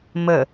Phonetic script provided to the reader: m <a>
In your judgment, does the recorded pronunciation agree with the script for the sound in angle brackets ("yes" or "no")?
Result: no